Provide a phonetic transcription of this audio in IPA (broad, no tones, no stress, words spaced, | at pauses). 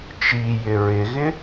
t͡ʃijɪ ɹɪɣɪ